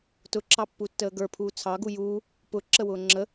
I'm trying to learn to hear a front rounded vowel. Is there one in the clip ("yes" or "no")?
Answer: no